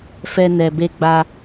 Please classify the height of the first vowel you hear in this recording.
mid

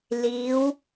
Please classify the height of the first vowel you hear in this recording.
high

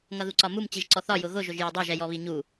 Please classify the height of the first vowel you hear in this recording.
mid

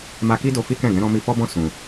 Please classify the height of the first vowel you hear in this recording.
low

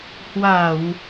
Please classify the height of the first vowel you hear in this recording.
low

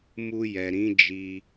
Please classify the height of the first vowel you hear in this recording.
high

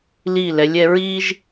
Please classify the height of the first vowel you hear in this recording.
high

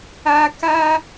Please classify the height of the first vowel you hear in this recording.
low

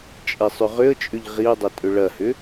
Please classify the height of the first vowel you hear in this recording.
mid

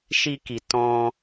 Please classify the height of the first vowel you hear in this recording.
high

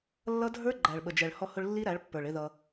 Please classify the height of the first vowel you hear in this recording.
mid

